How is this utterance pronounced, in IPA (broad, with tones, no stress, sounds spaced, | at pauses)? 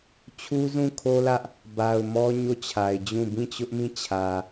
t͡ɕʰ u˦ z ũ˦˨ kʰ o˦ l ä˦ ʔ | b a˨ ʊ̯ m ɔ˦ ɲ o˦˨ t͡ɕʰ a˨ ɪ̯ d͡ʑ ũ˦˨ b ĩ˦˨ t͡ɕ ʊ˦ ʔ m ĩ˦˨ t͡ɕʰ ä˨